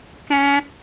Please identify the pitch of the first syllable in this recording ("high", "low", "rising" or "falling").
high